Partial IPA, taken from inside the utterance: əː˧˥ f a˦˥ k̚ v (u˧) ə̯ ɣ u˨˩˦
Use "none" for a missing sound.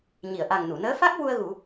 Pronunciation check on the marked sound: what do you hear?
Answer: u˧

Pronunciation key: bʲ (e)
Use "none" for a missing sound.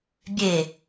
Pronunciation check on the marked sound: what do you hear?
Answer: e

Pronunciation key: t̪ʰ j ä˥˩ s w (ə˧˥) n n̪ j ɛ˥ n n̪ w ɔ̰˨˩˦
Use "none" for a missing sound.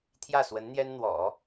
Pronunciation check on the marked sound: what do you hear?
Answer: ə˧˥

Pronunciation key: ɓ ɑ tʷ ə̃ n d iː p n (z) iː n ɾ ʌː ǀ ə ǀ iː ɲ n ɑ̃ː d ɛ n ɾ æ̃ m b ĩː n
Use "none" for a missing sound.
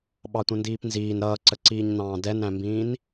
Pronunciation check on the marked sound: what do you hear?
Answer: z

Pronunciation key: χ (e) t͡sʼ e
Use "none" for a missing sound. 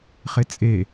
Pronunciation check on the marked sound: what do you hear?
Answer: e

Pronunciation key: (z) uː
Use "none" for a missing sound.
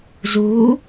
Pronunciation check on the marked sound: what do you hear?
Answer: z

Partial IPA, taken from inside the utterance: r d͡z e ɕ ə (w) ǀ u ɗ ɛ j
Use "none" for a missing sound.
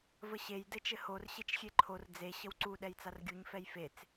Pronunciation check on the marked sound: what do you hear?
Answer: w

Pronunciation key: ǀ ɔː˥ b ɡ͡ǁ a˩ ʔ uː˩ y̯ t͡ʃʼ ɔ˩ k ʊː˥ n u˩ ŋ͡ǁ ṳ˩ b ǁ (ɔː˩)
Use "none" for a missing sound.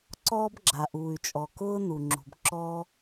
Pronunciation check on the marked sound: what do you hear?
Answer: ɔː˥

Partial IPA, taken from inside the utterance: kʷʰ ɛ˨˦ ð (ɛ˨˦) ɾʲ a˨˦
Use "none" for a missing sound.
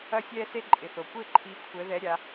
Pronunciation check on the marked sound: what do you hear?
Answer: ɛ˨˦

